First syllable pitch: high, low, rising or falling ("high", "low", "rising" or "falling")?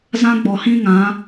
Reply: high